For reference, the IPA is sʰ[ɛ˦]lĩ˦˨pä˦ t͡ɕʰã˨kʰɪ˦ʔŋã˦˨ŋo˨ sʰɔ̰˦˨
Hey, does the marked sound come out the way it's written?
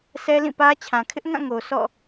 yes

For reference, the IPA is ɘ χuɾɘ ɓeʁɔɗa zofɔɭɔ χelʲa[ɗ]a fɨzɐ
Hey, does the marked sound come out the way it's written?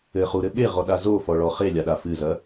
yes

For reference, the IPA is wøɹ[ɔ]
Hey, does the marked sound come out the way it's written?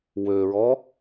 yes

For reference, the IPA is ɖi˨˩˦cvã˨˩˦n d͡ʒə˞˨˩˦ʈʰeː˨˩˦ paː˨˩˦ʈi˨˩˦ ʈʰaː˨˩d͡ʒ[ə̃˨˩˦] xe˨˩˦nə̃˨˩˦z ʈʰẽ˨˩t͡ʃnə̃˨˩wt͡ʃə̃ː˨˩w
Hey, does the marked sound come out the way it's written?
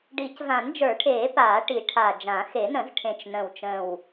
no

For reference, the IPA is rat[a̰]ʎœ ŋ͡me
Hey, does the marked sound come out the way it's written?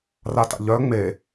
yes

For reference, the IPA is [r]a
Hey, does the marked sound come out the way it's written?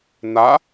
no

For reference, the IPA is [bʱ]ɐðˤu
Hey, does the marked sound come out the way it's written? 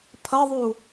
no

